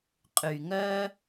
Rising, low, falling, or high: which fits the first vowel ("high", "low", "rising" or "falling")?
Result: low